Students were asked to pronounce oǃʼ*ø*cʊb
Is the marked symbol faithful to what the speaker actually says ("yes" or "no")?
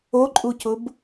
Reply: no